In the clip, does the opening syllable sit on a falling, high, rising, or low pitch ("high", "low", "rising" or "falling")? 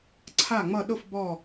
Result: falling